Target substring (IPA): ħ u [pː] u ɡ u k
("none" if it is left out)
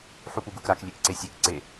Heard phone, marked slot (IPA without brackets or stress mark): p